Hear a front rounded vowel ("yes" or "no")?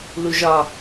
no